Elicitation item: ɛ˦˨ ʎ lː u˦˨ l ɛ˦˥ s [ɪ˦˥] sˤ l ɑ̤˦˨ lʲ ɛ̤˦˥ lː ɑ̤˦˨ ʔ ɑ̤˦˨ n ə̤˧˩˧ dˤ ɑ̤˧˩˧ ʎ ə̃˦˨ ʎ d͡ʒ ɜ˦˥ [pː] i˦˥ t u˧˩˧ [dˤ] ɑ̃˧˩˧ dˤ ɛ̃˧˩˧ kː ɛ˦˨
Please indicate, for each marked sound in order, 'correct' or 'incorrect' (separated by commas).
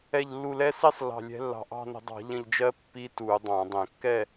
incorrect, correct, correct